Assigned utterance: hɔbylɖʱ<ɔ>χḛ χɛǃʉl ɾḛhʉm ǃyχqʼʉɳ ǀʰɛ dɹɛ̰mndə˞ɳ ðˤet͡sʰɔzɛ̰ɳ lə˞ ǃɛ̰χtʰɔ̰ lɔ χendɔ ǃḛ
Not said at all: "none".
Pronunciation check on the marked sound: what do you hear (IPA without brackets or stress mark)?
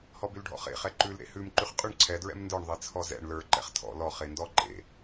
ɔ̰